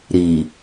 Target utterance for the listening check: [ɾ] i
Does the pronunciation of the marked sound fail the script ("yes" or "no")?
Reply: no